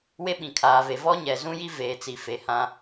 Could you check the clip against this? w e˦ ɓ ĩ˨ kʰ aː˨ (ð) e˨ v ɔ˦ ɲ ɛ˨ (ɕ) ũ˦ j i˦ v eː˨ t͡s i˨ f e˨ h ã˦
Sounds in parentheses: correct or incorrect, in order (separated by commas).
incorrect, incorrect